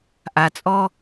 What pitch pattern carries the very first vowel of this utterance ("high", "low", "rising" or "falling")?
low